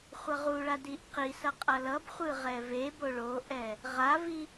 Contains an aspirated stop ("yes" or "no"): no